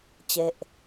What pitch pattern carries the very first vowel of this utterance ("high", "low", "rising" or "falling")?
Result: falling